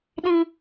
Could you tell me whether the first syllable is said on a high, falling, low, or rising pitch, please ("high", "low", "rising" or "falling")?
high